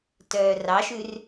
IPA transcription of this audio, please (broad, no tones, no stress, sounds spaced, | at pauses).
t œː r ɑ ʃ ʉ r